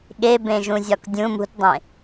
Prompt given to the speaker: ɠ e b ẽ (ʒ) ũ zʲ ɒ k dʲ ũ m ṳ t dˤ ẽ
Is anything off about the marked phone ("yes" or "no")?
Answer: no